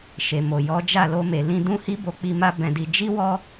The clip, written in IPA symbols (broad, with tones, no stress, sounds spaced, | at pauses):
ʃ e˨ m o˨ j ɔ˨˦ d͡ʒ a˦˨ l o˧ m e˨ l ĩ˧ d ũ˦ h i˦ b o˧ k͡p i˧ m a˦ b ɛ̃˧ d i˧ d͡ʒ i˦ w ɔ˦